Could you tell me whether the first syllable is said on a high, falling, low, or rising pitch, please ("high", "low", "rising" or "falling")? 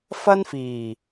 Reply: high